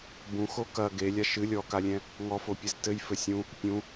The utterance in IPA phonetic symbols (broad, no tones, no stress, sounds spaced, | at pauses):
b ũ x o k ɐ ɡ e lʲ a ʃ ɨ lʲ ɔ k a lʲ ɛ̃ | ŋ ɔ f o pʲ ɨ z t ɘ j f ɘ sʲ ũ | pʲ ũ